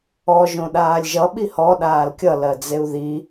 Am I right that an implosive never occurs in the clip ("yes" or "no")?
no